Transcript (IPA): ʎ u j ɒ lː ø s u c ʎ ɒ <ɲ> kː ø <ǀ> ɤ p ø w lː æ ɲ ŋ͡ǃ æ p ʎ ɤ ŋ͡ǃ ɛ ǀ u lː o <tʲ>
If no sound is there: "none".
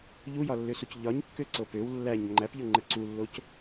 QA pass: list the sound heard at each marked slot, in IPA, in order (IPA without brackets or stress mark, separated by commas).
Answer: ɲ, ǀ, c